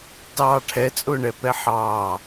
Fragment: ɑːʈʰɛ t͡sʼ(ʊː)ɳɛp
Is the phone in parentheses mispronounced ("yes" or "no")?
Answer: no